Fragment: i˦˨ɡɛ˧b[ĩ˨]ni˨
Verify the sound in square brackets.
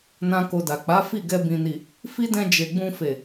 correct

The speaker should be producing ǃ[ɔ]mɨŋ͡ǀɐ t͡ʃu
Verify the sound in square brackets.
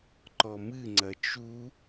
correct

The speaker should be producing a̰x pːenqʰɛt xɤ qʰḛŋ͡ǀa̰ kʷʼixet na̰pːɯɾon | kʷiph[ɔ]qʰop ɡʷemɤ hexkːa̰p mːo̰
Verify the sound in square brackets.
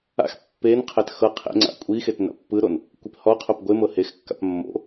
correct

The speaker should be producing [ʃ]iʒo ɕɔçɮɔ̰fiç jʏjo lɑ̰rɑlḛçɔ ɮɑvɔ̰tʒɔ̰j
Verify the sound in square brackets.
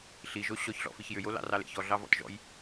incorrect: ɬ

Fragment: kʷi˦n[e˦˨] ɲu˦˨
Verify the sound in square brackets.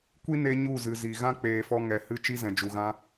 incorrect: e˧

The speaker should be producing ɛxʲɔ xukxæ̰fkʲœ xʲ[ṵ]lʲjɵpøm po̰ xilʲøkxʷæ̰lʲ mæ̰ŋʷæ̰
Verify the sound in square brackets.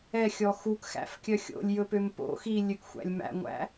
incorrect: o̰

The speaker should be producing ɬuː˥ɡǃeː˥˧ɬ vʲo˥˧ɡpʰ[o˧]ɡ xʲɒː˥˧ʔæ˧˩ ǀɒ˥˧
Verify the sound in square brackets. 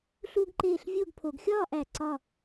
correct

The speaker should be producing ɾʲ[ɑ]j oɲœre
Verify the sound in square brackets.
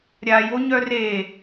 incorrect: a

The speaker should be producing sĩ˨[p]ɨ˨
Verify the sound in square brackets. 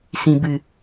incorrect: b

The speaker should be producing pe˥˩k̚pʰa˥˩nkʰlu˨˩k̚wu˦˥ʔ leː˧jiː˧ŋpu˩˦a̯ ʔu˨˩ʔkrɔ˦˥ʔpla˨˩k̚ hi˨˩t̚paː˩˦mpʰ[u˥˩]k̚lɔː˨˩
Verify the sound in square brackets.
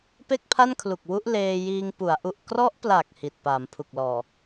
incorrect: u˨˩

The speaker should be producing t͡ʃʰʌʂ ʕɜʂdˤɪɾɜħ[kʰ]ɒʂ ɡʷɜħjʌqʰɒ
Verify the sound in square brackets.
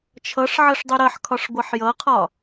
correct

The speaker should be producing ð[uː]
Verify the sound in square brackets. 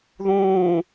incorrect: ũː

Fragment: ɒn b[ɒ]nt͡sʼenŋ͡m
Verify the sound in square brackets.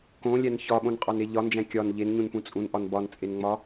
correct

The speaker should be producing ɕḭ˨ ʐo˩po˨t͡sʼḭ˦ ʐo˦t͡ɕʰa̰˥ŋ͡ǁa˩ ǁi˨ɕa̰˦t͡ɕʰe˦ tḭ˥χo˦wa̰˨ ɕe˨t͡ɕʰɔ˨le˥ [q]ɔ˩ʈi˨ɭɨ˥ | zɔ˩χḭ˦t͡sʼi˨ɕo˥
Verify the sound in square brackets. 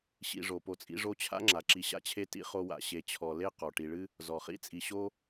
correct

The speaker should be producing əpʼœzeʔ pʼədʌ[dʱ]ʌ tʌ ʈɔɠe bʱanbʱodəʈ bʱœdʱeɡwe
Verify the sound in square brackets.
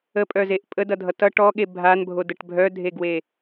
correct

